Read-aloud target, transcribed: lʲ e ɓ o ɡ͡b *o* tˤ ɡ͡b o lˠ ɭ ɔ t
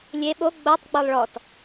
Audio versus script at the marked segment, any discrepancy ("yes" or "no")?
no